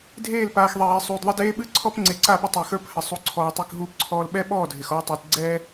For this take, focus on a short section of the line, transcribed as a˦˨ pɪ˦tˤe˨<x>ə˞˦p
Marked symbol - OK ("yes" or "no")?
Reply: yes